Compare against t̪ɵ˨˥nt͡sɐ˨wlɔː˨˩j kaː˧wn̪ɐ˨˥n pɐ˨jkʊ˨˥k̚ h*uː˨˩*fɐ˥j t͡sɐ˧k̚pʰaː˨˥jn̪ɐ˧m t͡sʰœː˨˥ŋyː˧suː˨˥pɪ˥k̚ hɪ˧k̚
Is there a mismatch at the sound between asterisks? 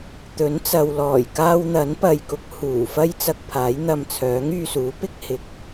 no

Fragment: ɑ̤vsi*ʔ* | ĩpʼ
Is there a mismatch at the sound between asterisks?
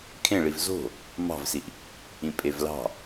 no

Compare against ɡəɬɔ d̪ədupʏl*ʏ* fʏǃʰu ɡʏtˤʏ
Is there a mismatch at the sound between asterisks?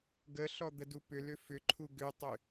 no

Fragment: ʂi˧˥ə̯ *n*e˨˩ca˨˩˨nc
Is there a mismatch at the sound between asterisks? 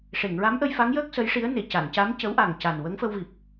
no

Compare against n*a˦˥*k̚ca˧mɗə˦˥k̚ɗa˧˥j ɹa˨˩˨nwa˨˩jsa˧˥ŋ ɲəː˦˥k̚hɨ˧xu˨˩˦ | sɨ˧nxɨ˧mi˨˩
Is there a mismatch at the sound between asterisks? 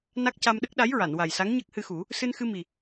no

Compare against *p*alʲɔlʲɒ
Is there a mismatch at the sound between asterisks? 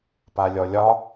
no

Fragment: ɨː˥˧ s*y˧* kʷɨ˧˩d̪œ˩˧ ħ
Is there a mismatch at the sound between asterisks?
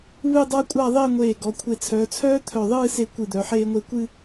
yes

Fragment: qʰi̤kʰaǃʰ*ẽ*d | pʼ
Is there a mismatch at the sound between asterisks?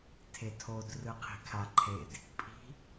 yes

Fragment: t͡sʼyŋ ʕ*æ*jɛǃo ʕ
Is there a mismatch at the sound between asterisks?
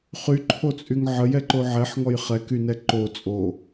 yes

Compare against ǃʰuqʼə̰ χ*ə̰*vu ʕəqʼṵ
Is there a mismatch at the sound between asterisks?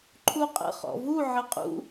yes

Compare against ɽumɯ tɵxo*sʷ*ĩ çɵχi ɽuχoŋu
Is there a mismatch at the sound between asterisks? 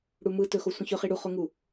no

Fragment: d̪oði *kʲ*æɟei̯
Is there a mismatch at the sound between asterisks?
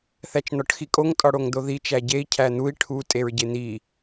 yes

